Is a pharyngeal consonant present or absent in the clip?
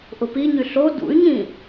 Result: absent